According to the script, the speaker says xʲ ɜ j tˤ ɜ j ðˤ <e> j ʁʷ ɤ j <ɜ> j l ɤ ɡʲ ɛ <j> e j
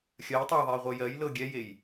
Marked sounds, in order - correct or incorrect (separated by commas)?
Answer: correct, correct, correct